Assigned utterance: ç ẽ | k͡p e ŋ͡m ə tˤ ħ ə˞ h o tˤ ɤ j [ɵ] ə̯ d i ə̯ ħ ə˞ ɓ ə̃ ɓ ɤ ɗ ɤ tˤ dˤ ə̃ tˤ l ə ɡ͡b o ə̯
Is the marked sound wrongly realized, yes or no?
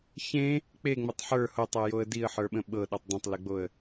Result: yes